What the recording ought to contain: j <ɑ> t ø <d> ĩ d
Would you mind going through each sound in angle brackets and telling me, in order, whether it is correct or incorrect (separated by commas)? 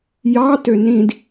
correct, incorrect